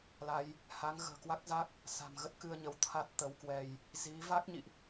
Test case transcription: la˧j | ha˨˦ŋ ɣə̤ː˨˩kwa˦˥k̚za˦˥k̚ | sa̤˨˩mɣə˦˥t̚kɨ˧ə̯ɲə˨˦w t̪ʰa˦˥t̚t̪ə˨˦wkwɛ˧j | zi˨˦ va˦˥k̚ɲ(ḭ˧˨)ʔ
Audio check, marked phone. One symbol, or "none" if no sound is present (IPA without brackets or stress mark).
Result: ḭ˧˨